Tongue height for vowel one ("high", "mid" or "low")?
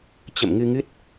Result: mid